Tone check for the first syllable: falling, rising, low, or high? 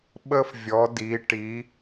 high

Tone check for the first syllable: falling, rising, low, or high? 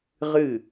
falling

